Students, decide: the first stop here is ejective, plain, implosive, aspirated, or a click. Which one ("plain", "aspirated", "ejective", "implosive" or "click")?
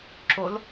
click